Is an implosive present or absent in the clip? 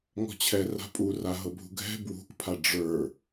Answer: absent